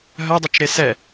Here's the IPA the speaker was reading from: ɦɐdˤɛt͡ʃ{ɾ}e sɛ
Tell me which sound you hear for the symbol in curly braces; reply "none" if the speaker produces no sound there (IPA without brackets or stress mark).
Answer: ɾ